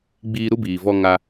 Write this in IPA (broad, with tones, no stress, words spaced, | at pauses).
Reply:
ɡ͡biː˦ ɾu˦biː˨vɔ˧ ŋa˦